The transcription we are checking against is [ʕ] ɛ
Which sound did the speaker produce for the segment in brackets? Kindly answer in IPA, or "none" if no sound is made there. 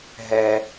ɦ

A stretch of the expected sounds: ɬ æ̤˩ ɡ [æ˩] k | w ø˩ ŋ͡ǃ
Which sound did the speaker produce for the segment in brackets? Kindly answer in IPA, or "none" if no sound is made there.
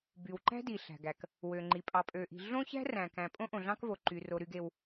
æ˩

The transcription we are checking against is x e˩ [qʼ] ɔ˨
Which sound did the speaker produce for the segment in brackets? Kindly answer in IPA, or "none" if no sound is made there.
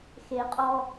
qʼ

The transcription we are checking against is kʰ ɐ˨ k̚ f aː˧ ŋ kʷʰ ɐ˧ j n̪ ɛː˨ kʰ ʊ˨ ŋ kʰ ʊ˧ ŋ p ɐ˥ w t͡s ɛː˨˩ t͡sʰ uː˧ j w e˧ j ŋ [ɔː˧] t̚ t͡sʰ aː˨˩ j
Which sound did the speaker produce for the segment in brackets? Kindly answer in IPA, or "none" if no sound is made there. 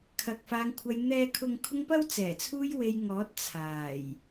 ɔː˨˥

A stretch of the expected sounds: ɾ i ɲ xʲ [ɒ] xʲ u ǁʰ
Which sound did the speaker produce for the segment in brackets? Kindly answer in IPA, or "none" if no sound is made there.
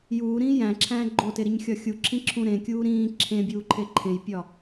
ɒ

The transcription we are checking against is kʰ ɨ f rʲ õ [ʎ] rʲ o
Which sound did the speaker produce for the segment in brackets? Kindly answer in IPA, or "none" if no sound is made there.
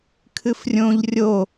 ʎ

